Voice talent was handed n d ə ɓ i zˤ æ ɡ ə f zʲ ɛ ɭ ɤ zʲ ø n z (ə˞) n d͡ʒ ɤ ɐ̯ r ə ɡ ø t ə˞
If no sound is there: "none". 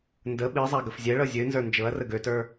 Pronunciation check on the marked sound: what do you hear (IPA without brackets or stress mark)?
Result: ə˞